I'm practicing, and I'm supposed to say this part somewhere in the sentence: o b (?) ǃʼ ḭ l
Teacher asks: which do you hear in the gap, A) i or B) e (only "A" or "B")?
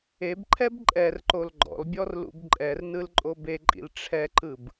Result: B